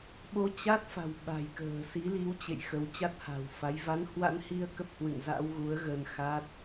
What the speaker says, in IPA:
ɓ o˧ t͡ɕ a˦˥ t̚ f a̤˨˩ w ɓ a̤˨˩ j k ə̤ː˨˩ s i˨˦ l i˨˦ w t͡ɕ ḛ˧˨ j x ə˨˦ w t͡ɕ a˦˥ t̚ h a̤˨˩ w f a˨˦ j v a˨˦ n h w a̰˧˥ n h i˧ ə̯ k ə˦˥ p̚ h w ɨ̰˧˨ ŋ z a̰˧˥ w ɣ u˨˦ ə̯ ɣ ə˧ n x a˦˥ t̚

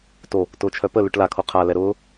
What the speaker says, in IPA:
t o | t ʊː t͡ʃʰ œ p ə l ʉ ʈ l a kʰ o qʰ a l ɛ ɾ ʊː

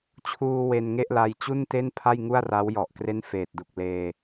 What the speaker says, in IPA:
t͡ɕʰ uː˧ w e˧ n ŋ e˥˩ ʔ l a˧ j t͡ɕ u˥˩ n t e˥˩ n pʰ a˥˩ j ŋ u˥˩ a̯ r a˦˥ w j ɔ˨˩ ʔ k r e˥˩ n f eː˨˩ t̚ d u˨˩ k̚ l eː˧

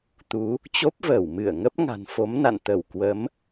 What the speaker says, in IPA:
t̪ u˨˦ | t͡ɕ o˦˥ p̚ v əː˧˩ w m ɨ˧˩ ə̯ ŋ ə˦˥ p̚ ŋ a̤˨˩ n f o˨˦ m n a̰˧˨ n t̪ ə˧˩ w k w ə˨˦ m

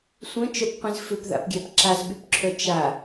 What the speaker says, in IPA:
sʷ œ̃ t͡ʃ œ p qʷ ĩ z f ʏ p ð a̰ p ɡʲ a p ǁ a z ɓ y p ǁʰ œ t͡ʃ a

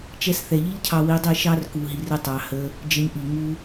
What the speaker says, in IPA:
t͡ʃ ɛ˧ s θ ɛ˨ ʎ i˦ ʎ cʰ ɑ˧ w i˧ dˤ i˦˨ ʃ ɑ˦ r k u˧ ɦ i˧ r ə˧ tˤ ɑ˨ h ə˧ | d͡ʒ ə˧ ɲ ʔ i˨ ŋ u˧

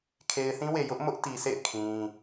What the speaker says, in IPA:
kʰ e˨ ɪ̯ θ ĩ˦ w e˨ j ʊ˦ ʔ m ʊ˦ ʔ t i˨ s ḛ˦˨ ɪ̯ kʰ ĩ˦

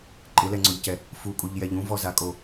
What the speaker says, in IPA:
ǃʼ ɪ l ɛ ŋ͡ǀ ɔ ʎ c ɛ | f u kʼ u ʎ j ɛ ʎ ũ v ɔ z a kʼ o

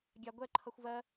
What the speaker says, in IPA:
ɡʲ a ɡʷ ɛ ǃʰ ʌ xʷ v ɜ

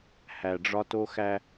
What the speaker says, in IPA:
h æ˨ ɖ͡ʐ ɒ˦ t o˦ x æ˦

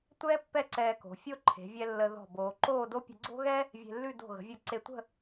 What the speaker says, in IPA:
tʷ ɛː˥ pː ɛ˥˧ ǀ ɛː˧ k o̤˩˧ fʲ o˥ ǃʰ e̤˩˧ vʲ ɛ˧ lː ə˧ ð ɔ̤˧˩ b oː˩˧ ǃ oː˥˧ d o˥ pʲ ə̤˧ ɡ͡ǀ o̤˥ ɣ ɛ˥ | vʲ e̤˧ lː ʉ˥˧ d o̤˧˩ ɣ ə̤˩˧ vʲ o˧˩ ǀ e˧ tʷ ə̤˥˧

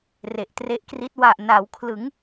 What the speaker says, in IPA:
r e˨˩ ʔ t r e˦˥ ʔ k r i˦˥ t̚ w a˨˩ ʔ n a˩˦ w kʰ l ɯ˩˦ ŋ

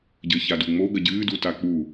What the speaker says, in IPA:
ɟ ɘ ç a d u ŋ͡m o ɡ ɐ ɟ ɨː d u t a k͡p u

